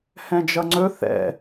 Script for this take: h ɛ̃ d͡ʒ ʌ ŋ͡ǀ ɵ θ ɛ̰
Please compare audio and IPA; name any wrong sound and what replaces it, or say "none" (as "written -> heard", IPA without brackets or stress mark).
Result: none